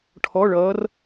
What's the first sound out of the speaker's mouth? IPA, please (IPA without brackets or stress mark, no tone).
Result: ʈʰ